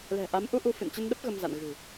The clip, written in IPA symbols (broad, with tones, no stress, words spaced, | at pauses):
lɛ̤˨˩ʔa˨˦m ʔu˧ʔu˧fɨ̰˧˨n t͡ɕə˧nɗə˦˥p̚ ɣə˧mza̰˧˨n ɣɨ̤˨˩